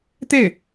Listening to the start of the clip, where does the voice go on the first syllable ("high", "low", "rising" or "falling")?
falling